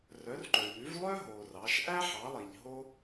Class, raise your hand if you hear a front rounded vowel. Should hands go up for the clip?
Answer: yes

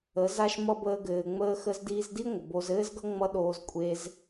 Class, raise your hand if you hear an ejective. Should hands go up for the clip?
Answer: yes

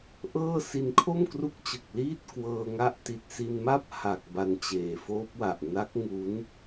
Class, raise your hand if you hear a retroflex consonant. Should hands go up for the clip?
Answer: no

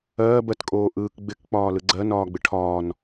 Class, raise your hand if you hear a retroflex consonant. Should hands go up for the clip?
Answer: yes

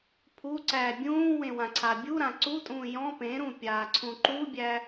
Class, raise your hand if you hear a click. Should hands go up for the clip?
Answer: yes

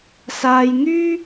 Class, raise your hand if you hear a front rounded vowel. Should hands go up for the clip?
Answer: yes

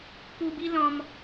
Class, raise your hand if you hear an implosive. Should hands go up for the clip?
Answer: no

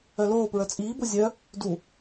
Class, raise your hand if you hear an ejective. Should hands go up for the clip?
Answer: yes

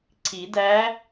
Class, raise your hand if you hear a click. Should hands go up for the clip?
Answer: yes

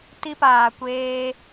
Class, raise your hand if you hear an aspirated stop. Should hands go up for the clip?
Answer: no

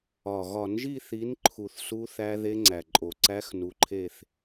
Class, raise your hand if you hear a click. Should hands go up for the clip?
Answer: yes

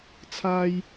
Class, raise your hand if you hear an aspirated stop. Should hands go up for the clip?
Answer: yes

